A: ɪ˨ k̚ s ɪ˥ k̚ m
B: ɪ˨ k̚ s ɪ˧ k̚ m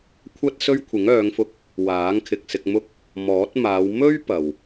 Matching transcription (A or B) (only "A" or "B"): B